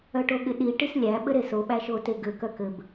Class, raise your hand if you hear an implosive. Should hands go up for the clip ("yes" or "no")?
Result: yes